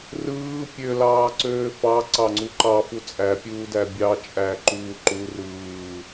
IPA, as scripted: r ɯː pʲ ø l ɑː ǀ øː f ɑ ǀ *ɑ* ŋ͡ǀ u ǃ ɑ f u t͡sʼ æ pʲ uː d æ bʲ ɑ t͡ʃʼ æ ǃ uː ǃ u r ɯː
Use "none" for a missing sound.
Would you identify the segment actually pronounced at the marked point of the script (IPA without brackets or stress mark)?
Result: ɑ